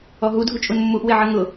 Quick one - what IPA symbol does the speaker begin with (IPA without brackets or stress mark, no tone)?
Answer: ɔ